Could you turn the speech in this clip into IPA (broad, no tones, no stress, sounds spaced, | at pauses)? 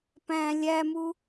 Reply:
p æ̃ lʲ æ m u